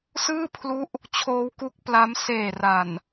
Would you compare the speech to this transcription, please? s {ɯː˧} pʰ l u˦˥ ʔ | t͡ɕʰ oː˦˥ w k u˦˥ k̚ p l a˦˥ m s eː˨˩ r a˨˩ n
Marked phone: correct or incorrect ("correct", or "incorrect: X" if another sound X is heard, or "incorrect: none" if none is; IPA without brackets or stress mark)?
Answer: incorrect: ɯː˥˩